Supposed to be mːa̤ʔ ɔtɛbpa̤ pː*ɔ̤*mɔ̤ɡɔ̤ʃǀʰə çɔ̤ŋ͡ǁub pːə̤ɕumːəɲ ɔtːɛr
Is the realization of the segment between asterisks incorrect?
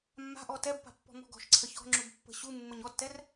no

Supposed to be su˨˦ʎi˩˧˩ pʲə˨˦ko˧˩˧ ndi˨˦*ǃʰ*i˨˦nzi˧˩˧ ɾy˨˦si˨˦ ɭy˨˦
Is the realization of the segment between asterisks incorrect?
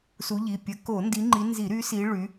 yes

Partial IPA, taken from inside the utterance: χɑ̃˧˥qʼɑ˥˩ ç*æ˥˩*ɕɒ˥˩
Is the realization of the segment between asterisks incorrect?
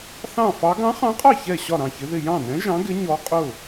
yes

